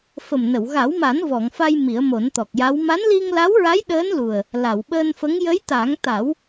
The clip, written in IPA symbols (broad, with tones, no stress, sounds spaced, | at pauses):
f ə˨˩ m n ə˨˩˨ w ɣ a˨˩˦ w m a˨˩˦ n v ɔ˨˩˨ ŋ f a˧ j m i˨˩˦ ə̯ m o˨˩˦ n t̪ ɔ˨˩ k̚ j a˧˥ w m a˧˥ n l i˧ ŋ l a˧˥ w ɹ a˧˥ j ɗ əː˧˥ n l u˨˩ ə̯ | l a˨˩˨ w ɓ əː˧ n f ə˧˥ ŋ j ə˧˥ j t̪ a˨˩˦ ŋ t̪ a˨˩˦ w